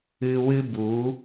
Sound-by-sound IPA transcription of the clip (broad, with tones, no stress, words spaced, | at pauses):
ɨ˧wɨ˦ bu˨˦